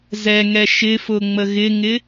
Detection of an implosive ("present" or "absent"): absent